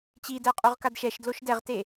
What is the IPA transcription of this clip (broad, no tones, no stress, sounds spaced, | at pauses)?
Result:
t͡ɕ i d ɛ qʼ u ʁ k a d ʃ ɛ ʃ d l o ʃ d ɛ ʁ t e